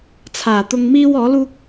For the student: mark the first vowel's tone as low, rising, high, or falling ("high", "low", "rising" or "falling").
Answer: low